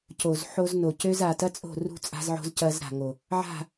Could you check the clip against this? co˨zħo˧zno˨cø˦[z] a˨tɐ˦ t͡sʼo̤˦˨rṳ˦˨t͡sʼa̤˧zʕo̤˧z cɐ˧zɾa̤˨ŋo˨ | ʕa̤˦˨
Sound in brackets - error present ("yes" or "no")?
no